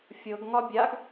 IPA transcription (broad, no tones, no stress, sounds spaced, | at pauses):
fʲ ɤ ɡ ŋ ɒ bʲ a ɡ